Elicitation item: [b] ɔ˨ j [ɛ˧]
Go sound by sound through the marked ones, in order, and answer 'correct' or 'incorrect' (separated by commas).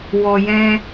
incorrect, incorrect